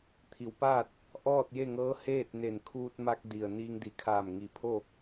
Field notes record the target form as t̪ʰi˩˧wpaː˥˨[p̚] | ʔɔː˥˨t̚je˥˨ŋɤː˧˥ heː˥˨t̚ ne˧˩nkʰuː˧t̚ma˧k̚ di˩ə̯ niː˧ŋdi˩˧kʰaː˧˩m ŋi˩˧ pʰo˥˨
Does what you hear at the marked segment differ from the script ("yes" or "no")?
yes